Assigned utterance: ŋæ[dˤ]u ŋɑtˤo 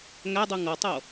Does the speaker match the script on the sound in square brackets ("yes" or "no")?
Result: yes